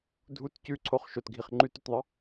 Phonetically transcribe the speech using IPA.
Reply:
dʱ u t c ʉ ǀʰ o χ ʃ o t ɡʱ i χ ŋ͡ǃ ʉ t ʉ t ðˤ ə

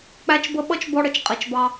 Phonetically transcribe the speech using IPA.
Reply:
k͡p æ˧ t͡ʃ b ə˧ ɓ ʌ˦ t͡ʃ b ɔ˧ ɽ ə˨ t͡ʃ qʼ i˨ t͡ʃ b ɑ˧

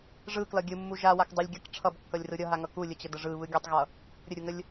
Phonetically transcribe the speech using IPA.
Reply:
ʐ ɯ k l ʌ ɡʲ ɯ mː u ʒ a w a k dˤ ɯ lʲ ɡʲ ʌ k ʈ͡ʂʰ ʌ b kː ʌ lʲ r ɯ ɾʲ ʌ ɦ a ŋ ʌ k u lʲ ə t͡ɕ ə d ə ʐ ɯ β ɯ ɡʲ ʌ tˤ ɣ ʌ | ɾʲ ə ɾʲ u ŋ ə lʲ

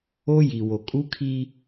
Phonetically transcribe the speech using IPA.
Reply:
o˦ j i˨ w o˨ kʼ u˦ kʰ i˦

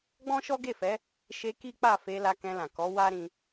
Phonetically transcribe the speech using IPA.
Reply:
ɡ͡b ɔ̃˦ ʃ ɔ˦ ɡ e˦˨ f ɛ˨˦ | ʃ e˧ k i˦ k͡p a˦˨ f e˧ l a˧ k ɛ̃˧ l ã˨ k ɔ˨˦ w a˦ ɾ ĩ˧

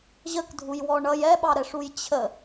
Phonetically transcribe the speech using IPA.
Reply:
ʑ ə k dʱ u j w ɔ ɳ ʌ j ɛ ɓ ɑ ɾ ɛ ʂ u j t͡ɕʰ ə

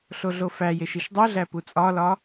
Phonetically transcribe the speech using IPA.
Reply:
ɬ o ɮ o f æ j e ʃ i ʃ dˤ u ɮ æ p u t͡sʼ ɒ l ɒ

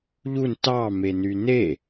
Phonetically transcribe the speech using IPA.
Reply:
ʎ u n t ɑ m e n y n e

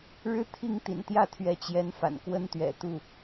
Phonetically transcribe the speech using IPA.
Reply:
ɻ ɻ̩˥ t̪ʰ i˥˩ ŋ t̪ ḭ˨˩ n t̪ j ä˥˩ t̪ʰ ɥ ɛ˧˥ t͡ɕ j ɛ˧˥ n f a̰˨˩ n k w ə˥ n t̪ ɥ ɛ̰˨˩ t̪ u˥˩

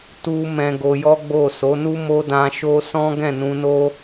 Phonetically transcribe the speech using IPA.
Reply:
t u˦ m ɛ̃˧ ɡ o˧ j ɔ˦ ɡ͡b o˦˨ s o˨˦ n u˦ m o˦ d ã˧ ʃ o˦ s ɔ̃˦ ɡ ɛ̃˦˨ n ũ˧ n o˦

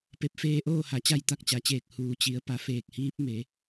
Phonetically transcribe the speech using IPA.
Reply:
p e˧˩ p̚ f eː˧ ʔ oː˥˨ h a˩˧ t͡ɕ a˥˨ j t̪ a˥˨ k̚ t͡ɕ a˩˧ t͡ɕ eː˧˩ k̚ h uː˩˧ t͡ɕ i˩˧ ə̯ p a˩˧ f eː˧˩ k̚ h iː˧˥ p̚ m e˩˧

